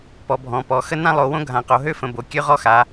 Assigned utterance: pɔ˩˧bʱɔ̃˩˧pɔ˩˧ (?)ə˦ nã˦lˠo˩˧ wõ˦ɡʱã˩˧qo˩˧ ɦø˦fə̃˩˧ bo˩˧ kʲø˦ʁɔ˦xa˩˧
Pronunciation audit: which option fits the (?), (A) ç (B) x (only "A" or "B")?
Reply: B